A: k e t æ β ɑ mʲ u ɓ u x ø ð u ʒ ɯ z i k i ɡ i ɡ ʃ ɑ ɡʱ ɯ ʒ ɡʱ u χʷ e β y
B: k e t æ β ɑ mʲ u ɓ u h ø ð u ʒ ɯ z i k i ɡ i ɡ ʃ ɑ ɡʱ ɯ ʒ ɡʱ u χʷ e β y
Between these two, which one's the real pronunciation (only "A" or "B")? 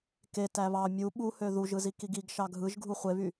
B